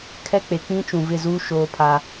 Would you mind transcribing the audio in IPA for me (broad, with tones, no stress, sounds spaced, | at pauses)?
kʰ ɛ˦ k͡p e˨ k͡p ĩ˦ t͡ʃ ũ˨ v ɪ˦˨ z uː˦ ʃ oː˦ pʰ a˦